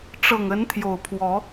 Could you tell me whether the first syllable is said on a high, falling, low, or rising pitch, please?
low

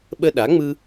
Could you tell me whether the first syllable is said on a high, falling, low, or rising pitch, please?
high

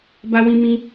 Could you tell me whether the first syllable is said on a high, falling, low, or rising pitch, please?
high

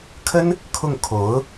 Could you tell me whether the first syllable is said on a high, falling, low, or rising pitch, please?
high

